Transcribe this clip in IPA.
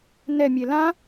nɛmʲe lã

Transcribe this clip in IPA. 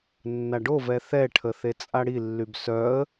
nːaɖovɛ θɛʈʰə θet͡sʼaɽilːyb sœə̯

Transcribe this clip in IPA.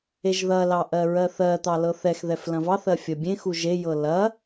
eʒðɐlɑ ʔɜɹɜθɜt̪ɑ lɤθɛxðɛf lɐ̃vɑθɜ fʲɐbʲẽxu ʒejɤ lɐ

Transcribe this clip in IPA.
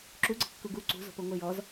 ǁuɡ͡ǀə̤ kːuɡu ǀṳzo̤poŋʷə jɔz

